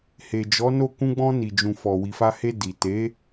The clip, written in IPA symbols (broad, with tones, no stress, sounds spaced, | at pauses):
h e˨ d͡ʒ ɔ˨˦ n o˦˨ k ũ˧ ɡ͡b ɔ̃˧ n i˨ d͡ʒ ũ˨ f ɔ˨ w i˨ f a˧ h e˧ d i˨ t e˨˦